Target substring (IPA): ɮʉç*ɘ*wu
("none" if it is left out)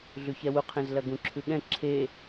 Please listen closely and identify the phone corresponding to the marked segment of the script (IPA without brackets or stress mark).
ɛ